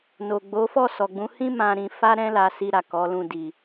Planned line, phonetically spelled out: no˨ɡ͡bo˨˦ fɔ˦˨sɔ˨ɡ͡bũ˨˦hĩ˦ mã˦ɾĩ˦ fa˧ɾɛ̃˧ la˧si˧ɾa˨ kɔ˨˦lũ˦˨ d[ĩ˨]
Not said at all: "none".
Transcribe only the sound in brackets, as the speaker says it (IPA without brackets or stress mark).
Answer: i˨